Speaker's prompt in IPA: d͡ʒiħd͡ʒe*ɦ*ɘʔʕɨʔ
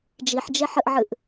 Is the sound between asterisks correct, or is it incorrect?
incorrect